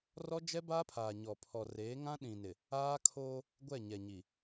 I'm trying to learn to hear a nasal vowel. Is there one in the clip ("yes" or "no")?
yes